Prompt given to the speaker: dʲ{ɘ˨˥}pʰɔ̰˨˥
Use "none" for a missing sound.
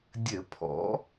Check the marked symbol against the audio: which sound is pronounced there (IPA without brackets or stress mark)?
ɘ˧˩˧